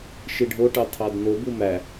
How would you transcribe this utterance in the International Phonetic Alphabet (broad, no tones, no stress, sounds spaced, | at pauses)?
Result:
ʃ i ɖʱ o ʈ ɑ tʰ ɑ d n o b u m æ